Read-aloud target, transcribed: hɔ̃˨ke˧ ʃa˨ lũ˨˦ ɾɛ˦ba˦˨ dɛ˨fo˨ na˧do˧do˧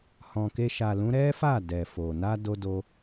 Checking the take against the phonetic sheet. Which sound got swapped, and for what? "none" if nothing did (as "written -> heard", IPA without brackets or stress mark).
b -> f